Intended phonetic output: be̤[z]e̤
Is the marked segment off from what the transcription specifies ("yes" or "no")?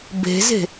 no